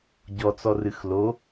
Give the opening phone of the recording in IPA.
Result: ɟ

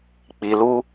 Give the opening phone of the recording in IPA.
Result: k͡p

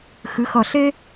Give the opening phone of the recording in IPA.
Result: x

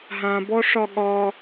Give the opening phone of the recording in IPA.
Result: ɦ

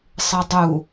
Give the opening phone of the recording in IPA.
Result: sˤ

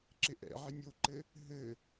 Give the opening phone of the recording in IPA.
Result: ǁ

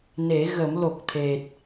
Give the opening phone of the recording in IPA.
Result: n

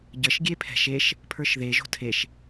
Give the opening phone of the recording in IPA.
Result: ɟ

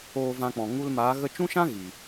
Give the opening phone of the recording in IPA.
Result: oː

